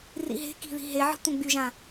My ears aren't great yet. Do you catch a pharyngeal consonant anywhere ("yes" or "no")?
yes